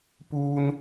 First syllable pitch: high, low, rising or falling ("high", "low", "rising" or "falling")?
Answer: low